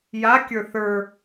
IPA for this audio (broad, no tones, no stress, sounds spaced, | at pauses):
j a kʲ ə˞ θ ə˞